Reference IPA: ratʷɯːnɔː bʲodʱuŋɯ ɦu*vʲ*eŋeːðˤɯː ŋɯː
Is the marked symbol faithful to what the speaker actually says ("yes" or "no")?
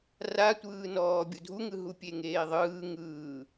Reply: no